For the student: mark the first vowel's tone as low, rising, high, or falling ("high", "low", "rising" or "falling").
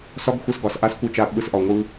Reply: high